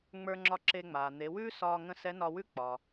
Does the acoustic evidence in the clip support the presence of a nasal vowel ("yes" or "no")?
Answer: yes